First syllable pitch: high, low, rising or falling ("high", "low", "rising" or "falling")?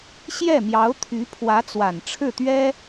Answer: falling